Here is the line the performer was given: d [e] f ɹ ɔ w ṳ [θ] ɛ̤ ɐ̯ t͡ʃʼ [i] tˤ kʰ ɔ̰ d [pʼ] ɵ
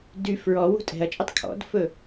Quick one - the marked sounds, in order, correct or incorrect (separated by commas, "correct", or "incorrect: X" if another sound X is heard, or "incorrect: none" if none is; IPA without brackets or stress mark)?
incorrect: y, incorrect: tʼ, incorrect: y, incorrect: f